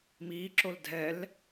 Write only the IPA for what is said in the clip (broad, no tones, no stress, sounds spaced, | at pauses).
m iː ǁ o l dʱ ɛ l